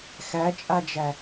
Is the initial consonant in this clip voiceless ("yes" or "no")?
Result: yes